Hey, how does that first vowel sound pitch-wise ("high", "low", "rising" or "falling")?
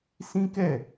high